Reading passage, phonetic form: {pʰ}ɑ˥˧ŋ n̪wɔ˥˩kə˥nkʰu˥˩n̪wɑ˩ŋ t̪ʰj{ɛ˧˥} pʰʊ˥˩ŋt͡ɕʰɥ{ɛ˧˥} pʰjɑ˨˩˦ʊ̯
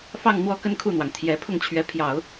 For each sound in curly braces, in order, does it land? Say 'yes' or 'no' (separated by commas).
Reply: no, yes, yes